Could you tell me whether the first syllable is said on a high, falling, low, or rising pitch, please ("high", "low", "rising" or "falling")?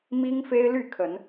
high